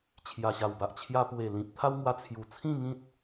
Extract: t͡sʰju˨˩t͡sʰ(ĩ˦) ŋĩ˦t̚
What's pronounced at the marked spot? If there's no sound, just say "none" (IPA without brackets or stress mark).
ĩ˥˧